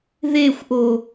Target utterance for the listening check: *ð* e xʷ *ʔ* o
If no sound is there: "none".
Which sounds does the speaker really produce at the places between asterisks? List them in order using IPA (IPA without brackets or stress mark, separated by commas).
ð, ʔ